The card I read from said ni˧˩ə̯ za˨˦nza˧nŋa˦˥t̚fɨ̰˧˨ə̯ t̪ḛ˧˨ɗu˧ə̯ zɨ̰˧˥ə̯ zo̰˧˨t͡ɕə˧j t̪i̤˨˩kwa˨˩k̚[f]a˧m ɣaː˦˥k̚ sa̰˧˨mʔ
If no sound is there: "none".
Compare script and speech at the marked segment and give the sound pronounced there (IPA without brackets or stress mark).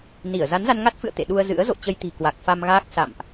f